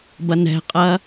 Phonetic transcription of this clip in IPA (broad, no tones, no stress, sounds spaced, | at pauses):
b ɐ n ɛ̤ qʼ ɐː